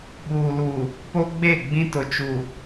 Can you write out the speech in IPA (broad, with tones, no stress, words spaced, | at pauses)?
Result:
ɓuː˨luː˨ | po˦ɡ͡be˦˨ ɡ͡bĩ˦tʊ˨t͡ʃuː˨